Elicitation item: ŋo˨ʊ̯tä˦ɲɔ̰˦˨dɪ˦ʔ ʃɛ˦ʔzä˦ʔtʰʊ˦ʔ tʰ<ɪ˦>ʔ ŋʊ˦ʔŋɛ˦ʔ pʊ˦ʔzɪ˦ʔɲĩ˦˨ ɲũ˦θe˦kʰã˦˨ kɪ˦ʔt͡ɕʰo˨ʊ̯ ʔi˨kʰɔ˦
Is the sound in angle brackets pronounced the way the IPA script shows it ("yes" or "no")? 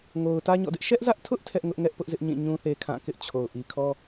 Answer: no